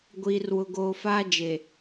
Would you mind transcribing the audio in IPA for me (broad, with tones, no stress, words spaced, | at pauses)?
ɡʷiː˨rwʊ˨ɡoː˨ faː˦d͡ʒe˨